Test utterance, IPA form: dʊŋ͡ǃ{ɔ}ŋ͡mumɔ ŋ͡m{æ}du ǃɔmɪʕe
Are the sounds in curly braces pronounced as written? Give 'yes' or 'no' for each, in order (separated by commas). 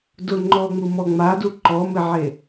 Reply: no, no